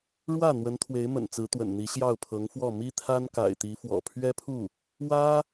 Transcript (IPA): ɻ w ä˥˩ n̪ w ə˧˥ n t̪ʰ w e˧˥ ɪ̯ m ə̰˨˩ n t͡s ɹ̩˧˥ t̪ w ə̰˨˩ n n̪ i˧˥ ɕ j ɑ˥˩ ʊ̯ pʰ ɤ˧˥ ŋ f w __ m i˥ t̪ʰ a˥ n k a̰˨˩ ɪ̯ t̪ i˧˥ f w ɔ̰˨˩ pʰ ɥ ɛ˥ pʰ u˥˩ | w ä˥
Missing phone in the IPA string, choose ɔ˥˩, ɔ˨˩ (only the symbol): ɔ˥˩